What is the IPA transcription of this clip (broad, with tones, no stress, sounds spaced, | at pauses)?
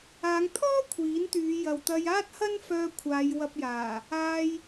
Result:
aː˨˧ ŋ t̪ʰ ɔː˥ kʷʰ iː˨˥ n t̪ yː˨˧ j ɐ˨ w t̪ ɐ˧ j aː˥ t̚ h ɐ˥ n f œː˧ kʷʰ aː˨˧ j w ɐ˧ p̚ j aː˨˩ | aː˧ j